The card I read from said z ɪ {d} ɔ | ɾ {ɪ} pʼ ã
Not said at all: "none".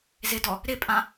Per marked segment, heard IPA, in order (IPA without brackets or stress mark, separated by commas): d, ɪ